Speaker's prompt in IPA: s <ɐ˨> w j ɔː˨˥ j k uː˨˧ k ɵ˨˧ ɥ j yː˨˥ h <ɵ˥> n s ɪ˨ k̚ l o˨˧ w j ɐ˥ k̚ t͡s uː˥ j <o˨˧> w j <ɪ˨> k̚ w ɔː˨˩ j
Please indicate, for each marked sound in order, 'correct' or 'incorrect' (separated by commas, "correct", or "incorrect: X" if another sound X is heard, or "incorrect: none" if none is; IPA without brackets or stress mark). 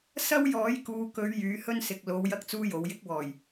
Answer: incorrect: ɐ˥, correct, correct, incorrect: ɪ˥